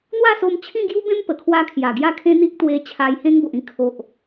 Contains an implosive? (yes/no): no